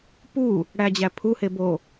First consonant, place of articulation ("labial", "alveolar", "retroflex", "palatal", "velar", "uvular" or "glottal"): labial